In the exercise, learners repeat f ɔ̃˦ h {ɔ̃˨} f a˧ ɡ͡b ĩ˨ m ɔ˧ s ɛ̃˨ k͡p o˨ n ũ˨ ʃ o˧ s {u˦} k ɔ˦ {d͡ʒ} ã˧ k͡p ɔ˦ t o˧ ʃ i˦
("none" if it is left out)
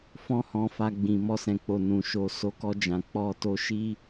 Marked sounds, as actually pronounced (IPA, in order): ɔ̃˧, o˦, d͡ʒ

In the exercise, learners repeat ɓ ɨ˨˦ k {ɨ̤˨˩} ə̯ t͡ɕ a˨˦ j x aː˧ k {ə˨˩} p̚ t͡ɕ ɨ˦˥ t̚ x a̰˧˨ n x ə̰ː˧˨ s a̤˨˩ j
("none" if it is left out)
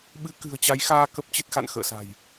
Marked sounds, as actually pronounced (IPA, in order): ɨ̤˨˩, ə˦˥

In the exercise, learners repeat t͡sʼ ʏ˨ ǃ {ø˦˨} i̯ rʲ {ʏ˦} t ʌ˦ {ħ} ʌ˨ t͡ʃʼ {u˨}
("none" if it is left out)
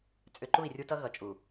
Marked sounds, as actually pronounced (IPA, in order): u˦˨, u˦, ɣ, u˨

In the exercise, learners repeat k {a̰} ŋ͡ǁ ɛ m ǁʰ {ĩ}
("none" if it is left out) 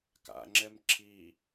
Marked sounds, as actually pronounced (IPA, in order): a̰, i

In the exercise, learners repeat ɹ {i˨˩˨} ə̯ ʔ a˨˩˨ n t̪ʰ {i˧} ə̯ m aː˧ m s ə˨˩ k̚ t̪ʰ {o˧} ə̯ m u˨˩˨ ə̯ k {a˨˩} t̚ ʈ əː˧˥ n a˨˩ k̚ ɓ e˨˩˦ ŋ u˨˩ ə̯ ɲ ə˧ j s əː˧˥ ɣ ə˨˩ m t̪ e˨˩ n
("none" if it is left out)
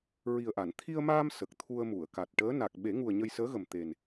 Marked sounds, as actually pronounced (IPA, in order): i˨˩, i˧, u˧, a˨˩

